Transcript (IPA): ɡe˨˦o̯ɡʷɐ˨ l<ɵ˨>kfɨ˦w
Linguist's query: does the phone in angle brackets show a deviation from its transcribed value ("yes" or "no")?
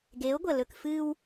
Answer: no